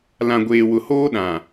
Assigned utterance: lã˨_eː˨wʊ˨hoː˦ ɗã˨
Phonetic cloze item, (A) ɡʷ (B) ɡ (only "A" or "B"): A